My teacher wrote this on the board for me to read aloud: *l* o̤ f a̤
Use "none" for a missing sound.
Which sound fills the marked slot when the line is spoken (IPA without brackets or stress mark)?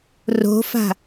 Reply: r